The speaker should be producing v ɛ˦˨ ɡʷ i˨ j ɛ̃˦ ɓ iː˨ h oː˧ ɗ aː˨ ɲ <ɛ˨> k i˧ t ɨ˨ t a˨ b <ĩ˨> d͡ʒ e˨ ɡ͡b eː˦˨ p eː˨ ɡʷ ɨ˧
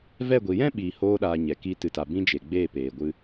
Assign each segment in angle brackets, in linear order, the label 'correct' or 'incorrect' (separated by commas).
correct, incorrect